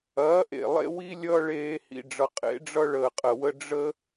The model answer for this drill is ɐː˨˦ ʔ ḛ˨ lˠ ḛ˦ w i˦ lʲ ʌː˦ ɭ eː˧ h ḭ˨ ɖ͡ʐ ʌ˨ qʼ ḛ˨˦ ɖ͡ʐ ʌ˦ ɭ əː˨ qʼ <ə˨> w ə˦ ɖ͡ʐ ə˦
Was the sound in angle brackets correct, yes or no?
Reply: yes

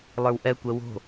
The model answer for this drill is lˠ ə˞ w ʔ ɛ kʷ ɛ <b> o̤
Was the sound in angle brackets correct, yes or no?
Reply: no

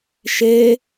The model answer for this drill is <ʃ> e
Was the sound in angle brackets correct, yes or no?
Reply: yes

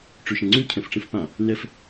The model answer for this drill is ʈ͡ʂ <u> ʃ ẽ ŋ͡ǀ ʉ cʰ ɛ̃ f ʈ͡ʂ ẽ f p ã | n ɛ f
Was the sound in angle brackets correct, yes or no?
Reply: no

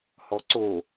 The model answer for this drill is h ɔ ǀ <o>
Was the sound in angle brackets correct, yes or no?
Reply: yes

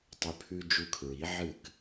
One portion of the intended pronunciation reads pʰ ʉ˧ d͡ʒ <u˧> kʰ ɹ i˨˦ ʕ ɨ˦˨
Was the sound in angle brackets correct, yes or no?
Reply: yes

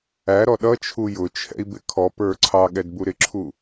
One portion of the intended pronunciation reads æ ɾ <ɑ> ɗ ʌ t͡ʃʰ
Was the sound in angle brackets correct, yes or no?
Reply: no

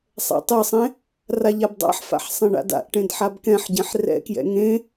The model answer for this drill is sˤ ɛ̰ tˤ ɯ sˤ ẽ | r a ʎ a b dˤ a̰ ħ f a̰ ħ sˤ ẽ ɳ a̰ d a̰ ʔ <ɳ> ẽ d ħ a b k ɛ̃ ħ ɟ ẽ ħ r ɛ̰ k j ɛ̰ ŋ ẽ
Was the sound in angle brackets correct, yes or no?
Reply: no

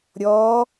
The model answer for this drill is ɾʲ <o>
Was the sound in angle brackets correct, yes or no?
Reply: no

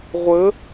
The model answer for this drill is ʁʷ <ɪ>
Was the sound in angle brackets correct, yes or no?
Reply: no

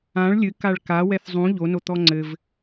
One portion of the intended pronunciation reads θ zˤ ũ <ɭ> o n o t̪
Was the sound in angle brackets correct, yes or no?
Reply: no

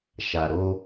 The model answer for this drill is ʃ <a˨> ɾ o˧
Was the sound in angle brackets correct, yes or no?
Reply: yes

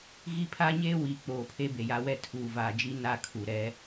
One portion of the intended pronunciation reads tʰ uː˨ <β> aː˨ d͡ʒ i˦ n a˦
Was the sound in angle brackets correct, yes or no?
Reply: no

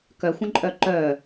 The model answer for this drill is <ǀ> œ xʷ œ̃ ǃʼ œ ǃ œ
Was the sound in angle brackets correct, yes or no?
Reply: no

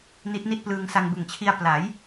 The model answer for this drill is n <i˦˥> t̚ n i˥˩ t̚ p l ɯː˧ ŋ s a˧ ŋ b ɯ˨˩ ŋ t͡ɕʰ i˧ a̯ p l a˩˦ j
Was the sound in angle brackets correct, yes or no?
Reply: yes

